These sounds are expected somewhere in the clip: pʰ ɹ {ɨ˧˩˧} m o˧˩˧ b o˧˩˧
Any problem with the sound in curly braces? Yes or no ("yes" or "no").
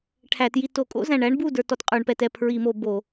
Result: yes